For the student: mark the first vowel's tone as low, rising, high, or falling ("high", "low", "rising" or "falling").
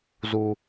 low